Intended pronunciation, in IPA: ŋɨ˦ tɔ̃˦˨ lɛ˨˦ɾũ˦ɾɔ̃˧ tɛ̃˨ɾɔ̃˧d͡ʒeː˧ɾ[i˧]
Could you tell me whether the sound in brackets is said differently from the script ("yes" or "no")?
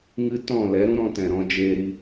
no